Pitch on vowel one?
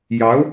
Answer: rising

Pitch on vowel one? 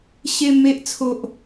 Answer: high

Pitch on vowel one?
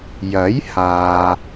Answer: rising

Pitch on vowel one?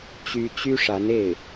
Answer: high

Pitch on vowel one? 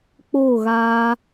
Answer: falling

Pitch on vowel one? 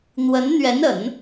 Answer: rising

